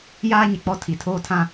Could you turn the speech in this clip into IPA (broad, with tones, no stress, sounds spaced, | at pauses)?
j aː˦ ɲ ɪ˨ k͡p ɔ˦ tʰ i˨ tʰ oː˦ tʰ ã˦